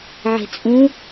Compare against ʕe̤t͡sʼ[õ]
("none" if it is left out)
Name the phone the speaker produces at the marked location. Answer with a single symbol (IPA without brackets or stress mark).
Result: ũ